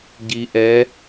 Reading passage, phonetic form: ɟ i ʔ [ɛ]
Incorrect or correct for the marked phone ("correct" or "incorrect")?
correct